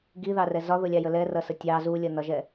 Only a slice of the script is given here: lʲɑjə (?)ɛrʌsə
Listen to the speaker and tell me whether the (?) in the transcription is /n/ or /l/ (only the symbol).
l